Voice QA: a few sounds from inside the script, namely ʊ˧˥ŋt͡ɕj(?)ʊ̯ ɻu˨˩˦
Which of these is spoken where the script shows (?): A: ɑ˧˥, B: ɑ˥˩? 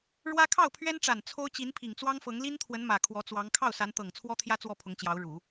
A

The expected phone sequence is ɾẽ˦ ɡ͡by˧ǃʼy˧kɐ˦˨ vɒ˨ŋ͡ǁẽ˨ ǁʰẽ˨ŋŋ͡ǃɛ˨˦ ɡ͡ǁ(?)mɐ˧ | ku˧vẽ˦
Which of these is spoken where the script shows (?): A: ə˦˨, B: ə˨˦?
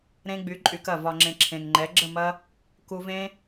A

